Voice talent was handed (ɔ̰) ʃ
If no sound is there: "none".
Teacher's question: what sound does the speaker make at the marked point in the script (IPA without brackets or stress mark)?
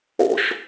ɔ̰